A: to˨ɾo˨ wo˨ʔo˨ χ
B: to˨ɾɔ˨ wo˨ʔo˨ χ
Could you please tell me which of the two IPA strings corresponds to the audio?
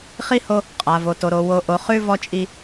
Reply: A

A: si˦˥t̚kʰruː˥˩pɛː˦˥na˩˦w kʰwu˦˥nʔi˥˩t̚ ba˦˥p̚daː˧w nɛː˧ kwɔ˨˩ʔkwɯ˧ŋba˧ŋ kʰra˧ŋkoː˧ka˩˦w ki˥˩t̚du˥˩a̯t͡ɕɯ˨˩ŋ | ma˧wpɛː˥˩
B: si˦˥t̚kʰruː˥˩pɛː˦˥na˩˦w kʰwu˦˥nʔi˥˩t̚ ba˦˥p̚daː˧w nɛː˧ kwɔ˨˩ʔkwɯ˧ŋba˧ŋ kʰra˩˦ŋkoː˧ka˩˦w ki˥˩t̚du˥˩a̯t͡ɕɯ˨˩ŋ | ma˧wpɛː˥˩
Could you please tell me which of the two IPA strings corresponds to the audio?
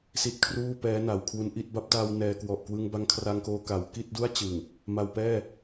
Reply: A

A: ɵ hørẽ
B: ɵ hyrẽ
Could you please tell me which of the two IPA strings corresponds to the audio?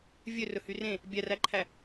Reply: B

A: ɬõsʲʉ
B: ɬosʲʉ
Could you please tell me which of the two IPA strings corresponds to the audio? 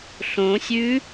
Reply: A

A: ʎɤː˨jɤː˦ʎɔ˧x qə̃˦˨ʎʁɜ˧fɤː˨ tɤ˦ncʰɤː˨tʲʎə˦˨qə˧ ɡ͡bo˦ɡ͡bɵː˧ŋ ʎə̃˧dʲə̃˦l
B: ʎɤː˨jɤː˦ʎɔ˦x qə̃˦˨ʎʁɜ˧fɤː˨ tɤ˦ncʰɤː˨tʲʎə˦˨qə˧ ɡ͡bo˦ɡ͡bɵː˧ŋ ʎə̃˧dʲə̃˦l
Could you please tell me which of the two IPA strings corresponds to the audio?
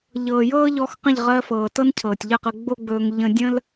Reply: A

